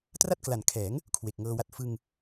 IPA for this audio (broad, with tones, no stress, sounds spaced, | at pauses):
t r a˥˩ t̚ k l a˨˩ n kʰ ɛː˩˦ ŋ | kʰ w e˨˩ k̚ ŋ ɤː˧ w a˦˥ t̚ f ɯ˧ ŋ